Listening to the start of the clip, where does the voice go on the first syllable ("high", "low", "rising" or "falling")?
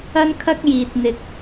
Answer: high